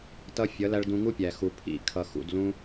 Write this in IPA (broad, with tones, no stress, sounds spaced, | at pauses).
t ʌ˧ fʲ ʌ˨˦ l æ˧ ɭ d ũ˧ ŋ u˦ pʲ æ˨ x u˨ pʰ ḭ˦˨ kʰ ʌ˨ x ṵ˨ d l ũ˧